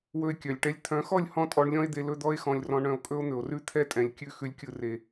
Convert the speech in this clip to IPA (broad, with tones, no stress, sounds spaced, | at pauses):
w ɵ˧ e̯ kʲ œ˨ lʲ ʈ ɛ˧ lʲ t̪ʰ œ̃˨˦ x ɔ˦˨ lʲ h ɔ̃˧ tʼ ɔ˧ ɳ lʲ ɔ̃˦ e̯ d̪ e˧ l ɵ˦ d̪ ɔ˦ e̯ x ɔ̃˧ lʲ r ɔ̃˧ ɳ œ̃˧ o̯ kʼ ɵ˦ o̯ n̪ ɵ˨ o̯ r ʉ˦ t̪ʰ ɛ˦ tʼ ɛ̃˨ lʲ kʲ ʉ˦˨ x ʉ˧ lʲ kʲ ɯ˧ r e˧